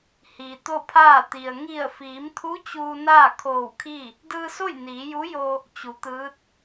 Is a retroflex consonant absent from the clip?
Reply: yes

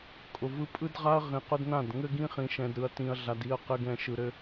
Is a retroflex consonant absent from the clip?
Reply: yes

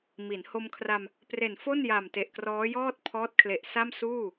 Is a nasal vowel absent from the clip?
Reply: yes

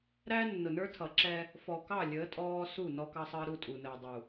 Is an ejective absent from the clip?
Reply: no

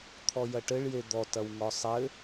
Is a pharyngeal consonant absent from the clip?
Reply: yes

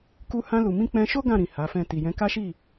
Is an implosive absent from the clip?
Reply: yes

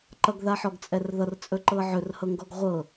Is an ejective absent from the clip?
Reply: no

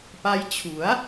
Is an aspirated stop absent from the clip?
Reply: no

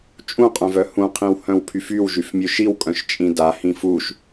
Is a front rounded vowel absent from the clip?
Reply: no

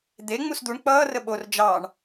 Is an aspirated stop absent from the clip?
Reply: yes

